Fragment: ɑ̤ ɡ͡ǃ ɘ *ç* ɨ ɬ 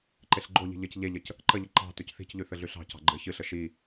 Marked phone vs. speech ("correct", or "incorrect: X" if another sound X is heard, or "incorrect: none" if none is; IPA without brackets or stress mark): correct